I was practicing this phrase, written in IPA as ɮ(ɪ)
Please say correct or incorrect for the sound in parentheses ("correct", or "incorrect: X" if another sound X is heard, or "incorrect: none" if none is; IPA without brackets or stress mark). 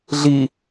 incorrect: i